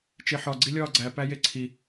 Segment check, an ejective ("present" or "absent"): absent